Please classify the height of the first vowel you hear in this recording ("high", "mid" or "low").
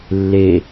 mid